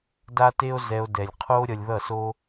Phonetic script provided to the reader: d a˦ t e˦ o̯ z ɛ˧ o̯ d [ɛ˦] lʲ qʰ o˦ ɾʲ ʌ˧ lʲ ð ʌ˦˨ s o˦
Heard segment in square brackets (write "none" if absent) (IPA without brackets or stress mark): ɛ˨